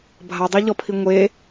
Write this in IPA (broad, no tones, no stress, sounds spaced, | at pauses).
bʱ a dˤ e ʎ ɔ pʰ i ŋʷ e